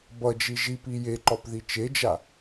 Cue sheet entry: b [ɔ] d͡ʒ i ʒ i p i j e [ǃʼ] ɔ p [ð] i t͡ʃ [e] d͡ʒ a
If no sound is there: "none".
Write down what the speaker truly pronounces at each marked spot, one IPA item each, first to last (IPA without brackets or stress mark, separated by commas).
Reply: ʌ, ǃ, ð, e